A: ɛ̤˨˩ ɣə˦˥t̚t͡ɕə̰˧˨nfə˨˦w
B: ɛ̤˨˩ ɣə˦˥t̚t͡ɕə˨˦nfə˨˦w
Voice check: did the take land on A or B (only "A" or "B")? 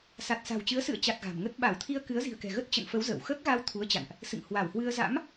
A